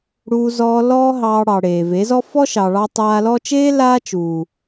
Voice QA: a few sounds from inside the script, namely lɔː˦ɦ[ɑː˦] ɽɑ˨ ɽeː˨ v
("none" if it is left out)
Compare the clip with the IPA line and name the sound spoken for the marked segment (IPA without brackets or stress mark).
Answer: ɑː˧